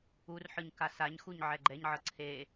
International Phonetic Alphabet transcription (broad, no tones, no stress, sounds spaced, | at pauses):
u r ħ ɯ ɲ k a s a ɲ x u ɲ ʕ ɛ ɡ͡ǃ ɛ ɲ ʕ ɤ ǀʰ e